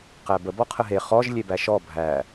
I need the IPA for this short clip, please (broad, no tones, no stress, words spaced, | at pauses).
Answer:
qæbə bɔqʰəɦe χɔʒ lʲebæʃɔ bʱæ